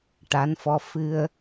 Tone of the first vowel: rising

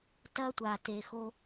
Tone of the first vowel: high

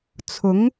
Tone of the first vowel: rising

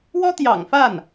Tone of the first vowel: high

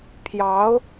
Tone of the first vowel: rising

